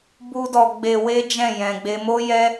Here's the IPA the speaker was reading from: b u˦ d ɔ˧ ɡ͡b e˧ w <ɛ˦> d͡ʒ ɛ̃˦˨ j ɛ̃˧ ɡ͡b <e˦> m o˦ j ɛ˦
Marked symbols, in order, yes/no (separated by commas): no, yes